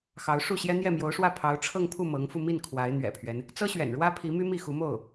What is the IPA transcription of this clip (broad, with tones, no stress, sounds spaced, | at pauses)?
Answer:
x ɑ˧˥ ʊ̯ ʂ u˥˩ ɕ j ɛ˥ n̪ j ɛ˥˩ m j o˧˥ ʊ̯ ʂ w ä˥˩ pʰ ɑ˧˥ ʊ̯ ʈ͡ʂʰ ɤ˥˧ ŋ pʰ u˥˩ m ɤ˧˥ ŋ f u˧ m i˥˩ n kʰ w a˧˥ ɪ̯ n̪ ɥ ɛ̰˨˩ pʰ ɥ ɛ˦ n | t͡s ɤ˥ ɕ ɥ ɛ̰˨˩ n ɻ w ä˥ pʰ i˧˥ m y˥ m i˥˩ x u˧˥ m o˥˩ ʊ̯